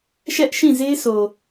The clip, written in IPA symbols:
ʃ ɛ˦ ʔ ʃ ĩ˦˨ z e˦ s o˨

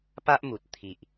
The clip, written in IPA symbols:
p a˦ ʔ m u˨ t̚ t̪ʰ i˨ ʔ

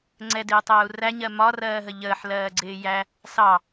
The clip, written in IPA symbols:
ŋ͡ǀ ɛ d ɪː tˤ əː u̯ r æ ɲ ɜ m ɒ r ɜː ɦ ə ʎ əː ħ l ɜː ɡ͡ǀ ɪː j æ | s ɑ

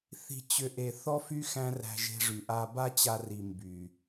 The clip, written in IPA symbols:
θ i̤˧ t͡ɕ ʏ˦ ʔ e˨ θ ɔ˦ f y˦ x æ̃˦ r æ̤˧ ʒ e̤˧ ʐ y˨ ʔ a˧ b a˦ t͡ɕ a˧ r i˨ m b y˨

